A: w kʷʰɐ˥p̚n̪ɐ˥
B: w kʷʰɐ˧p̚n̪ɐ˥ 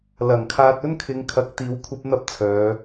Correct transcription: A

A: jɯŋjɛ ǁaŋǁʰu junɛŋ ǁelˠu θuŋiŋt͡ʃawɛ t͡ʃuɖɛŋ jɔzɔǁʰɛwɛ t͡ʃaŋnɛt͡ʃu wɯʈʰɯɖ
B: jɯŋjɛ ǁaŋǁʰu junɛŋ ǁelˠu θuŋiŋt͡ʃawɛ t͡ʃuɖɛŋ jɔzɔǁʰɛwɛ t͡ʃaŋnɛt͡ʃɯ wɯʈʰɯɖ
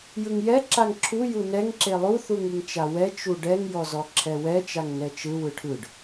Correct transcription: B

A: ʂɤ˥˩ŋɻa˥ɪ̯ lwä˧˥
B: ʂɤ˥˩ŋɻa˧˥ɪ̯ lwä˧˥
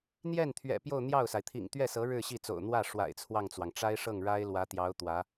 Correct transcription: A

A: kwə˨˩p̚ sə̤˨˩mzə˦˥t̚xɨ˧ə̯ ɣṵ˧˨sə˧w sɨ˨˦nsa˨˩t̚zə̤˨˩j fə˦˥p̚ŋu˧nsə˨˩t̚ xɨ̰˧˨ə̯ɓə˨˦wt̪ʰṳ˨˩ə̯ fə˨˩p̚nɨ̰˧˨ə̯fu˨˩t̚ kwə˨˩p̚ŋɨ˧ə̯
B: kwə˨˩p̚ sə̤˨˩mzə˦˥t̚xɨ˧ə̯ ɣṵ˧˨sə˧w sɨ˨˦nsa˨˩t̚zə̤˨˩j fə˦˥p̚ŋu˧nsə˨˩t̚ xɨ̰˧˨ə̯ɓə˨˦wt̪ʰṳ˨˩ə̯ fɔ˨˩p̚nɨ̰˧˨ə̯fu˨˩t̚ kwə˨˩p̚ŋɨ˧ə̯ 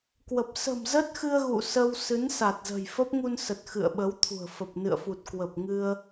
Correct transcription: A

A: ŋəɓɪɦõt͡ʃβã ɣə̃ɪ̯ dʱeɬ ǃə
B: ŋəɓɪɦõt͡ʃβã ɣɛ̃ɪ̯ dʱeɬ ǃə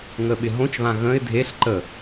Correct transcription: A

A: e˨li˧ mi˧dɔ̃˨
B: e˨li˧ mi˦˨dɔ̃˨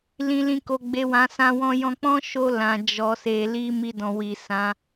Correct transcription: A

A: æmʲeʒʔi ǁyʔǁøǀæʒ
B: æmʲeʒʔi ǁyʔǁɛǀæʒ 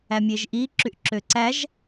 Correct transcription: A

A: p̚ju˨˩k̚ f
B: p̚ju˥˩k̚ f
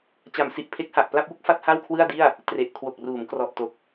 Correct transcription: B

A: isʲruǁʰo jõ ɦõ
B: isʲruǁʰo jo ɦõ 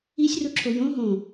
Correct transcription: A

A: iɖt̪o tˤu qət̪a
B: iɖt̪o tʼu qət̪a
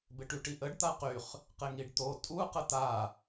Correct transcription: B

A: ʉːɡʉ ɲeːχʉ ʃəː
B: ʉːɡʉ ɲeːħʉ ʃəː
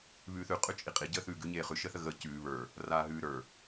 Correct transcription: A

